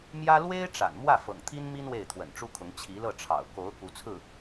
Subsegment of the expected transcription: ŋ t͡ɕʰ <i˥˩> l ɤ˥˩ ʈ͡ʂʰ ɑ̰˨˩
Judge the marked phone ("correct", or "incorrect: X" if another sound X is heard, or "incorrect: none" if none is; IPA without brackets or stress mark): incorrect: i˧˥